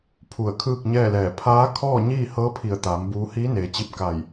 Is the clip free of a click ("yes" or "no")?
yes